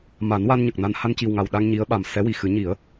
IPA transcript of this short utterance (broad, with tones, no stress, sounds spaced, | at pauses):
m a˨˩˦ n w a˧ n ɲ ə˨˩ k̚ n a˧ n h a˧ n c i˨˩ w ŋ a˨˩ w ɗ a˧ ŋ ɲ i˧˥ ə̯ ɓ a˨˩ m s ɛ˧˥ w i˨˩ x ɨ˨˩˦ ɲ i˨˩˦ ə̯